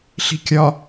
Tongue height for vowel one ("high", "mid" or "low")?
high